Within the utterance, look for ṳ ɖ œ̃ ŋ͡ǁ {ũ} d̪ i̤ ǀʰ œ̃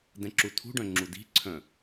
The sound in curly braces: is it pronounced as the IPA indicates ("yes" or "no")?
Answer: no